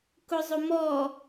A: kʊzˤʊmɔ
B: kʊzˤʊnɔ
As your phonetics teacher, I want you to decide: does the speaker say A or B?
A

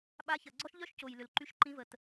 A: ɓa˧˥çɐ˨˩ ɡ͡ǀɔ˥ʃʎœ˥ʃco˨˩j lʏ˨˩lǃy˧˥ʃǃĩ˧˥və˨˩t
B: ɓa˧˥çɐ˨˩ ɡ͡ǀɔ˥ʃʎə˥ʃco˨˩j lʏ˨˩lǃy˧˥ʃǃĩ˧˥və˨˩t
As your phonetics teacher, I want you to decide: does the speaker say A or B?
A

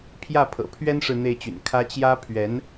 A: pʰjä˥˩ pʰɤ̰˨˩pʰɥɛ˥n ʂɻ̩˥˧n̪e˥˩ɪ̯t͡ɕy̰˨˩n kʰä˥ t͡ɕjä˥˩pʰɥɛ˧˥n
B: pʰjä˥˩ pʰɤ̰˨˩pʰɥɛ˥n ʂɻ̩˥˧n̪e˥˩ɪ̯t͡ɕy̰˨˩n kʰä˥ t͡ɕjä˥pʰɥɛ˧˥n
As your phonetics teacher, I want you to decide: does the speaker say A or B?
B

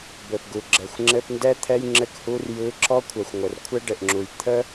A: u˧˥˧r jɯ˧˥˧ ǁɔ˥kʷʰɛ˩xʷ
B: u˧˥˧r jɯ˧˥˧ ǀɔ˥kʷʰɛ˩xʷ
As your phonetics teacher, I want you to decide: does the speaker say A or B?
A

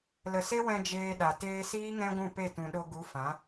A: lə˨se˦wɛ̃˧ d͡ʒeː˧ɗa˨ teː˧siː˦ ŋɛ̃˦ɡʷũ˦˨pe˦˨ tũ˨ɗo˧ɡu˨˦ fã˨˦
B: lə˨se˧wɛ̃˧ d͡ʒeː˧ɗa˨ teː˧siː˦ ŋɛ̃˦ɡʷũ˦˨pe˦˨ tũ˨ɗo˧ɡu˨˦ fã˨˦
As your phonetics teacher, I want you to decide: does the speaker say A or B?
A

